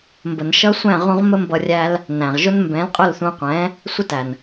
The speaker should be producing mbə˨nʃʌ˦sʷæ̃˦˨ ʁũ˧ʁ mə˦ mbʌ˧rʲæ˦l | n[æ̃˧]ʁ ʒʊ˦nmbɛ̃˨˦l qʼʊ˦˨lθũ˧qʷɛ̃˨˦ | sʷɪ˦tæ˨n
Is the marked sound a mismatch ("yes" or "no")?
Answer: yes